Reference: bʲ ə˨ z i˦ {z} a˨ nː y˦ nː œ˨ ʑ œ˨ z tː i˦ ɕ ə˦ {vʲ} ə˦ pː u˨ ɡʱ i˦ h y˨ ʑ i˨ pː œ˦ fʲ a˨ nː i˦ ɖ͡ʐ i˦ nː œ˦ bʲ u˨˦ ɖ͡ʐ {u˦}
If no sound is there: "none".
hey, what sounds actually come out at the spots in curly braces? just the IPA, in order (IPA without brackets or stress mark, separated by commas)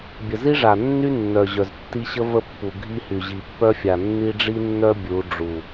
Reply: ʐ, v, u˨